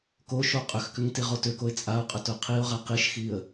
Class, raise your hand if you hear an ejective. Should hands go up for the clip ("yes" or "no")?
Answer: yes